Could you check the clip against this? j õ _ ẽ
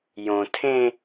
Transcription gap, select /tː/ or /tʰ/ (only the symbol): tʰ